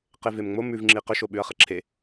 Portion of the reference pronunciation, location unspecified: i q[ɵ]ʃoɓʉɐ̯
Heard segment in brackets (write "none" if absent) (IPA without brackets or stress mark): ɵ